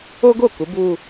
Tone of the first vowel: high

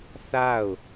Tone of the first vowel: falling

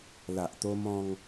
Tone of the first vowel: low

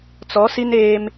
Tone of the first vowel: rising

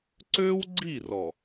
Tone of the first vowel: high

